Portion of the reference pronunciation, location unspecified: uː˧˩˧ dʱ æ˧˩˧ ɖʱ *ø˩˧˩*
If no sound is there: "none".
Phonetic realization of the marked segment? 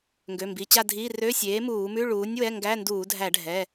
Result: ɛ˩˧˩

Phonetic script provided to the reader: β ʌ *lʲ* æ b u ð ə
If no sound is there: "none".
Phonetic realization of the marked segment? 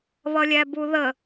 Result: lʲ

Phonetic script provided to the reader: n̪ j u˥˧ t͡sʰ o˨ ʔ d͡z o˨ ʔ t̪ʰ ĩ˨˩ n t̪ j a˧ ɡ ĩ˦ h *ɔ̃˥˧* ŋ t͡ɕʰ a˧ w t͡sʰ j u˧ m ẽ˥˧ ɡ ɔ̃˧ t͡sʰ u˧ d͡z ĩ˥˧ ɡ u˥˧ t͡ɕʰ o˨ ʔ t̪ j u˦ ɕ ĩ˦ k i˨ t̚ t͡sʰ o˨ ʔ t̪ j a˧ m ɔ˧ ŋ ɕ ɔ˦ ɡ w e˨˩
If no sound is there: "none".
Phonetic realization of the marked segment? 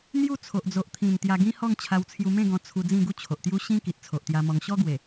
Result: ɔ˥˧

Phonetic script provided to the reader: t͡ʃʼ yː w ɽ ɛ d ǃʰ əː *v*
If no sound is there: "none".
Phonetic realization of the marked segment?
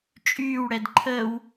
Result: w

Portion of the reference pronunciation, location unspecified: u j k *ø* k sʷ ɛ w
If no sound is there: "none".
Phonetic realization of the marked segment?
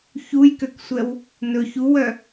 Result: ø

